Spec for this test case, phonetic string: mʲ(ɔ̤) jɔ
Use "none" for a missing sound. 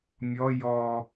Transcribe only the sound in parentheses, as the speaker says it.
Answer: ɔ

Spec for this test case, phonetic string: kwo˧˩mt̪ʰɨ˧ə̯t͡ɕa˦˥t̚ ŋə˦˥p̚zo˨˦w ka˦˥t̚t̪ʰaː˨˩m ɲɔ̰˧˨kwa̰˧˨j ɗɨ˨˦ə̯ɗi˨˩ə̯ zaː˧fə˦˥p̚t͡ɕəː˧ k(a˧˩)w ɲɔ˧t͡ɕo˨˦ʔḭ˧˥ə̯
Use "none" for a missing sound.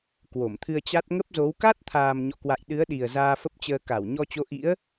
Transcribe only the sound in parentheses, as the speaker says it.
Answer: a˧˩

